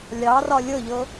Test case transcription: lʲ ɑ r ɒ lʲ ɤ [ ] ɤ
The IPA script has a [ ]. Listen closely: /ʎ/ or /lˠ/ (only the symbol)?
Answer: ʎ